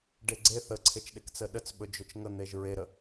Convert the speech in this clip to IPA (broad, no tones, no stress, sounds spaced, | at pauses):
ɖ e ɡ͡ǀ e θ ə ǀʰ e t͡ʃ ɗ e k t͡s ə ɗ ə t͡s ɓ ɵ d͡ʒ ɵ t͡ʃ ŋ ə n̪ e ʒ ɹ e ɾ ə